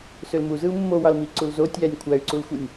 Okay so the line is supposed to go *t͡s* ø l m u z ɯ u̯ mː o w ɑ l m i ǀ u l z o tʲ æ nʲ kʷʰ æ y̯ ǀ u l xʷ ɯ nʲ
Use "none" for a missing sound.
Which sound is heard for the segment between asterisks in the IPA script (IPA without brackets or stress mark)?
s